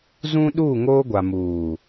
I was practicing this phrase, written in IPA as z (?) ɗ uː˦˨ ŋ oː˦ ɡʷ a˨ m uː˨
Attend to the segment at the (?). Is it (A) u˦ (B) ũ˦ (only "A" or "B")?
B